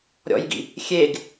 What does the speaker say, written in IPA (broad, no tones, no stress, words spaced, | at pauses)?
ɾʲɔ̰jɡḭ | xʲeɡ